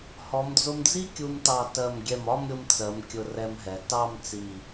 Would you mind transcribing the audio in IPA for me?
hɔ˩˧md͡zʊ˧md͡zi˥ kʲu˧mtɑ˧˩ tɜ˧˩mɡʲɛ˧˩m ɒ˥˧mɾʲʊ˧mt͡sɜ˩˧m kʲʊ˧rɛ˧mɦɛ˩˧ tɑ˥˧mt͡si˧˩

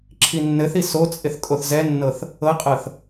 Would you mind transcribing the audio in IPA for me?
ǁʰinːɘθi sot͡sʼɪθ kʼoθzɛnːɤθ | ɤqʼɤθ

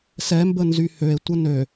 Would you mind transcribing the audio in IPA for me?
sɛmbə nzyhøe̯tʷə nø

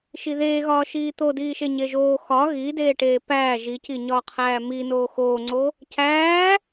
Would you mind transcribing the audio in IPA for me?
ʃiðeːɣɒː ʃiːt̪odiːʃe ɲeʒoː xɒ ɣideːʈeː pæː ʒiciɲɒːqʰæː mi noːxoːŋ͡ǀo | cæː

